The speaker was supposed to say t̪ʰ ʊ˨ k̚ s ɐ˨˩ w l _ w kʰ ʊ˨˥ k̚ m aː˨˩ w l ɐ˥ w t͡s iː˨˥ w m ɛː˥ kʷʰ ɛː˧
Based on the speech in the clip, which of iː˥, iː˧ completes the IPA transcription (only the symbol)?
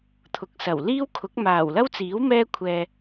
iː˥